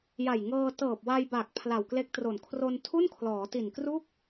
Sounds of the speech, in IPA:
j a˨˩ j ŋ ɤː˧ t ɤː˨˩ p̚ w a˧ j b a˨˩ k̚ pʰ l a˨˩ w k l e˦˥ k̚ t r o˨˩ n kʰ r o˧ n tʰ u˥˩ n kʰ l ɔː˩˦ t i˨˩ n k r u˥˩ k̚

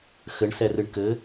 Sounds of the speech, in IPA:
x ɘ ɳ s ɛ r ɨ ɳ k ɘ

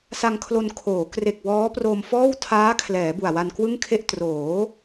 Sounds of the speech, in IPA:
s a˧ ŋ kʰ l o˧ n kʰ oː˩˦ k r e˨˩ k̚ w ɔː˦˥ p r o˧ m f ɔː˥˩ w tʰ aː˦˥ kʰ l ɛː˩˦ b u˨˩ a̯ w a˧ n k w ɯ˥˩ ŋ kʰ e˥˩ ʔ t r oː˩˦

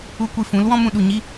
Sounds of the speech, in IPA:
u˦ kʷ i˧ f ũ˨˦ l w ɔ̃˦ m ũ˦ ɗ u˨ ɲ i˦

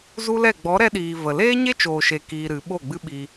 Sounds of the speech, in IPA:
z u˦ l ɛ˦˨ ɡ͡b ɔ˨˦ ɾ ɛ˧ ɗ iː˨ v ə˨ l eː˦ ɲ e˦ t͡ʃ oː˨ ʃ e˨ k iː˧ ɾ ɨ˨˦ ɓ o˦˨ ɡ͡b ɨ˦ ɓ i˧

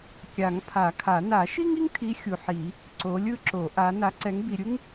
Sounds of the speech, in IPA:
kʲ a˨˩˦ ŋ pʰ a˨˩˦ kʰ a˨˩˦ n a˨˩˦ ʃ i˥ ŋ i˥ ŋ tʰ i˨˦ xʲ u˨ ħ i˨˩˦ | ǀ o˨˦ lʲ ɯ˥ ǁ o˨˩˦ ʔ a˨˦ n a˨˦ ǀ ɛ˨˦ ŋ b i˨ ɾʲ ɯ˥ ŋ

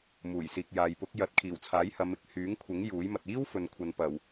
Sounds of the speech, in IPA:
m uː˨˩ j s iː˨ k̚ j aː˨ j p ʊ˨˥ k̚ j ɐ˨˥ t̚ kʰ iː˨˩ w t͡sʰ aː˨˥ j h ɐ˨˧ m ɪ˨ k̚ h yː˨˥ ŋ kʷʰ ɪ˨˥ ŋ j uː˨˥ j m ɐ˨ t̚ iː˥ w f ɵ˨ n kʷʰ ɐ˨ n p ɐ˨˩ w

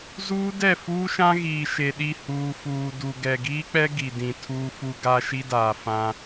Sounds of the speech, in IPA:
z uː˦ d ɛ˦˨ f uː˦ ʃ ã˦ ɣ iː˨ ʃ e˨ ɗ i˦˨ h uː˨ f uː˨ d u˨ ɡ ɛ˨ ɡ iː˦ k͡p ɛ˦ ɡ i˨ d ĩ˨ tʰ uː˨ f u˨ ɡ a˦ ʃ i˦ d aː˨ f ã˦

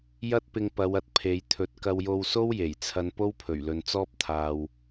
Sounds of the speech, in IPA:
j ɐ˥ t̚ p ɪ˧ ŋ p ɐ˨˧ w ɐ˨ t̚ pʰ e˨˧ j t̪ʰ ɵ˨ t̚ k ɐ˧ w j o˧ w s o˥ w j e˨˩ j t͡sʰ ɐ˧ n p o˥ w pʰ ɵ˨˩ ɥ l ɵ˨ n t͡s ɔː˥ p̚ t̪ʰ aː˨ w

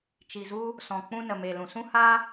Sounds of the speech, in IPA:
t͡ʃ i˨ z u˧ | s ɔ̃˨ k͡p ũ˧ n ə˨ m e˨ l ũ˨ s ũ˦ h a˦

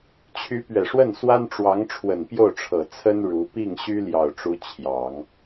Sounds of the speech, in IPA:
t͡ɕʰ y˧˥ p ɥ ɛ˨˩ ʂ w ə˥˩ n s w a˥ n ʈ͡ʂ w ɑ˧˥ ŋ ʈ͡ʂʰ w ə˨˩ n p j o˥˩ ʊ̯ ʈ͡ʂʰ ɤ˨˩ t͡sʰ ə˥ n ɻ u˧˥ p i˥˩ ŋ ɕ y˥ l j ɑ˨˩ ʊ̯ ʈ͡ʂ u˧˥ t͡ɕʰ j ɑ˨˩˦ ŋ

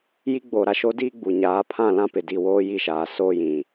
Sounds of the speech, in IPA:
j i˦ ɡ͡b oː˨ ɾ a˦ ʃ o˦ d iː˦ ɡ͡b u˨ ɲ aː˨˦ pʰ ã˦˨ l ã˦ p ɪ˨ d i˨ w oː˦ j i˦˨ ʃ aː˨ s oː˦ j ĩ˨

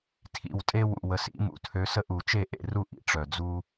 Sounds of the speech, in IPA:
tʰ ḭ˨˩ w tʼ e˦ w ṵ˨˩ w ə˨˩ s ḭ˨˩˦ m ṵ˨˩ tʰ ø˨˦ s ə˦ ʔ u˨˩˦ t͡ʃ e˥˩ ʔ ḛ˥˩ r u˥˩ ʔ ḭ˨˦ ʈ͡ʂ œ˨˩ d͡z u˦

